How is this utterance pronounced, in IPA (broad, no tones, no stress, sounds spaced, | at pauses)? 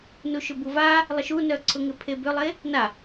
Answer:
n u ʃ ʏ b u v a | lˠ ɪ ʃ u n œ ǀʰ ʊ ŋ ɪ pʰ e b ʏ lˠ e | n a